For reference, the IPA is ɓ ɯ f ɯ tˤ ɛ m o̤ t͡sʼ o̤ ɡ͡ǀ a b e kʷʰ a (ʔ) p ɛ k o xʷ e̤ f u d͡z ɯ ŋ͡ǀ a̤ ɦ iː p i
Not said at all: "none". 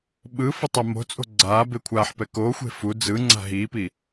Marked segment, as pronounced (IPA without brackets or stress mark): ħ